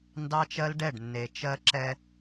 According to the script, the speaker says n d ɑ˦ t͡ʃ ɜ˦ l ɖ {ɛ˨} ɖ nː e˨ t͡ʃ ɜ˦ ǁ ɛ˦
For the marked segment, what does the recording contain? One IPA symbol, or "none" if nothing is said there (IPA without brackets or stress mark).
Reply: ɛ˦˨